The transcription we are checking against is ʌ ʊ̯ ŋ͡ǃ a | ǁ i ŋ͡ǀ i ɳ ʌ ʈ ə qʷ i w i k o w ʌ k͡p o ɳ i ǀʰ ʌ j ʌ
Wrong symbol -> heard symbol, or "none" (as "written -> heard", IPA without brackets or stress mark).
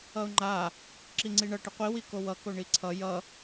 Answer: k͡p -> k